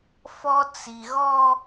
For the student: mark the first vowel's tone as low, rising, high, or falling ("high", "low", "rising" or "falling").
high